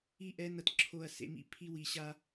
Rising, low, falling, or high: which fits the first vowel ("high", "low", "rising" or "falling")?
falling